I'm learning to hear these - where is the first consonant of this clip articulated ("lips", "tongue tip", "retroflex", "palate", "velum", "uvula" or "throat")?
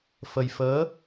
lips